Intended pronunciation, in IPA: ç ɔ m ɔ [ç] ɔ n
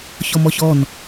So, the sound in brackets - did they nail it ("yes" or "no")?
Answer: yes